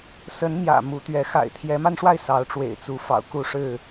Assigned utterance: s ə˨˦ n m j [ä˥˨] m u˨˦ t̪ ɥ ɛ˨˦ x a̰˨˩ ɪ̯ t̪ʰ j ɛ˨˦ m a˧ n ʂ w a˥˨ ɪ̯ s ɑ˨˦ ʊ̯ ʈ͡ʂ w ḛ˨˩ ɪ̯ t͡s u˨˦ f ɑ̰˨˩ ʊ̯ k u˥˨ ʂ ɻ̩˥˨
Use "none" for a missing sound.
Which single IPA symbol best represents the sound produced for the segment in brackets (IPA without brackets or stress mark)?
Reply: ä̰˨˩